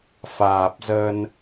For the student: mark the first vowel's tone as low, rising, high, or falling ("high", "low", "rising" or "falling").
low